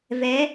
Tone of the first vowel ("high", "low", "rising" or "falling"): rising